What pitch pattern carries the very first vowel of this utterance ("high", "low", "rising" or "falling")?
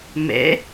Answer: rising